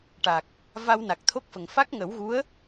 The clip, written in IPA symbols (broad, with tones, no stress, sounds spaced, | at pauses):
ʈ a˨˩ k̚ | v a˧ w n a˨˩ k̚ t̪ʰ o˦˥ k̚ f ə˨˩ ŋ f a˦˥ k̚ ŋ ə˨˩˦ w ɣ u˧˥ ə̯